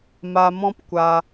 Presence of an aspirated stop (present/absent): absent